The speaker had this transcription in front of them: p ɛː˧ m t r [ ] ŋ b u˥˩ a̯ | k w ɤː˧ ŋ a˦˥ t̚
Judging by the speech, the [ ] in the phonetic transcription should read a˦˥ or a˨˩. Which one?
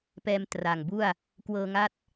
a˨˩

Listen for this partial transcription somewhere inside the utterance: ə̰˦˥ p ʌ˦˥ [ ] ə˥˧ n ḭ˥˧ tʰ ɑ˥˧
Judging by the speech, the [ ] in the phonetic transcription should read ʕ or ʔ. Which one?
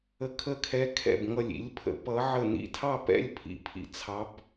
ʕ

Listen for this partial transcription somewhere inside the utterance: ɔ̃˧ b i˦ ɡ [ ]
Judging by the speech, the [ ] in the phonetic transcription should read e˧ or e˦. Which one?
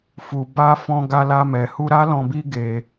e˧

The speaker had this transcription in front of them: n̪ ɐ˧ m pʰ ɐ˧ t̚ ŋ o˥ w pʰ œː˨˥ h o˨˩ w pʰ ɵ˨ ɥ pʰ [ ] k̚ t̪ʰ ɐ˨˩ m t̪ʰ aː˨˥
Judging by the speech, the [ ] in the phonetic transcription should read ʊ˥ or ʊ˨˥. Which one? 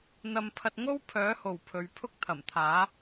ʊ˥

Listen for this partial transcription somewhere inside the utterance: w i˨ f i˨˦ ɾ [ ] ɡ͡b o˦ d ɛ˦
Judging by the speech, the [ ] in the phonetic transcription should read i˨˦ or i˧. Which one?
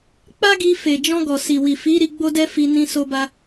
i˧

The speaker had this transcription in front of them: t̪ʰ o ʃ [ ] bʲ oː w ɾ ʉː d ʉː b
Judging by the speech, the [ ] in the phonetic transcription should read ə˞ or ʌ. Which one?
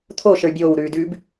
ə˞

